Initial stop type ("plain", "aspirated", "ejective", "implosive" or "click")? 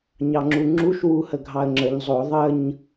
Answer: click